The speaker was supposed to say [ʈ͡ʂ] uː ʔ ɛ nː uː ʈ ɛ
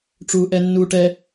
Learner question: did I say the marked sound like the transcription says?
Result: yes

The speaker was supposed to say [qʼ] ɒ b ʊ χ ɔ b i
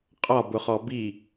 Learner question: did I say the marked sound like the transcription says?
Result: yes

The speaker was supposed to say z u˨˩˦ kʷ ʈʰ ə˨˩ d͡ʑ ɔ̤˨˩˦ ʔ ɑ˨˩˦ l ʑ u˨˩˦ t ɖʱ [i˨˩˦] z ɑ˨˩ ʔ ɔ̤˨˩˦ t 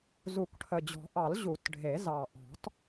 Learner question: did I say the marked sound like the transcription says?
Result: no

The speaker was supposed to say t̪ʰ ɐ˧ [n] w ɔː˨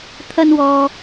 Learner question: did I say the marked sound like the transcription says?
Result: yes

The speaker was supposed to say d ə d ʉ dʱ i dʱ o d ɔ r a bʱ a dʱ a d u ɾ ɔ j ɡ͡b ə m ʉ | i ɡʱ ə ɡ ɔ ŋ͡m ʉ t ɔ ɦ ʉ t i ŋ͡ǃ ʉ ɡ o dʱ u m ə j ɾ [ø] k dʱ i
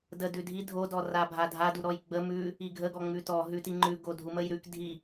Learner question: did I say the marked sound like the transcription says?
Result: no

